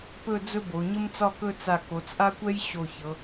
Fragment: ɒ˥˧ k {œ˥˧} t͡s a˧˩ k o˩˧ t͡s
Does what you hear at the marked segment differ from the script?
yes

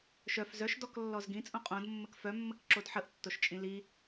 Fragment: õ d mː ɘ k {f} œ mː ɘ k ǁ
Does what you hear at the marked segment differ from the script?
no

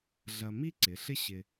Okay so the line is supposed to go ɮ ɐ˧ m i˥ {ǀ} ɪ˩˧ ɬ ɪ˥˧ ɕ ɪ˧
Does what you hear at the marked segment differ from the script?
no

